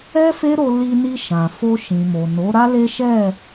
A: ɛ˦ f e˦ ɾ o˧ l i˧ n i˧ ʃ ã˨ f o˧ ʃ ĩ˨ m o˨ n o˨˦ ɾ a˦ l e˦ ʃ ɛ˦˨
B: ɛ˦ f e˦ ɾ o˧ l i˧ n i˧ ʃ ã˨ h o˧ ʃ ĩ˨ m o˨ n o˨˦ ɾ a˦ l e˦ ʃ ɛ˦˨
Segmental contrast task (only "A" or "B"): A